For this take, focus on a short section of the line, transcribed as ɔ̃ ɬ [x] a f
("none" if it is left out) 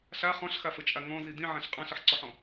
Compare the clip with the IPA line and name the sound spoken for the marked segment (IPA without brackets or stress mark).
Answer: x